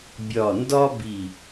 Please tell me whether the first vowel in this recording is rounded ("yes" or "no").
yes